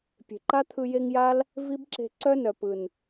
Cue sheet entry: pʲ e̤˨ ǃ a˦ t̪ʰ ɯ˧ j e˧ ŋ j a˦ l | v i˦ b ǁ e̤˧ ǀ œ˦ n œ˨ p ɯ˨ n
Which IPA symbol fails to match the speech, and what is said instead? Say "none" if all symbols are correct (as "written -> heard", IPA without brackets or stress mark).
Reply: none